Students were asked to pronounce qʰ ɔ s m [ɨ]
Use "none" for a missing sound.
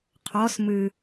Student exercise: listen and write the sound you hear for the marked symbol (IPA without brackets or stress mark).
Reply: ɨ